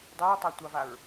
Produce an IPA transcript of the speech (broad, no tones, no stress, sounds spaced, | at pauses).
dˤ œ ɹ tˤ a tʷ ɑ v a ɹ